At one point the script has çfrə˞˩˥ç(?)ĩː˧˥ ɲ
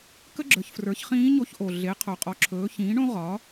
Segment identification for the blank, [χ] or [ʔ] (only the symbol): χ